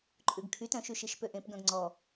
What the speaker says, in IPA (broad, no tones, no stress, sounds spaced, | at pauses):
ǃʼ ʉ ɡ kʰ y t œ̃ ʃ y ʃ i ʃ p ø ʔ ẽ p ɡ œ̃ ɡ ŋ͡ǀ ɔ